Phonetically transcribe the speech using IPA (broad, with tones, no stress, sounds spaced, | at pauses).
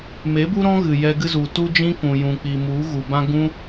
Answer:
m e˨˦ b u˦ ɾ ɔ̃˦ ɣ ɨ˨ j ɛ˧ ɡ ɨ˦ z u˨ t u˦ d͡ʒ ĩ˦ k ũ˨ j ũ˨ k͡p i˨ m u˨˦ ɣ u˨ b ã˦ ɡ ũ˦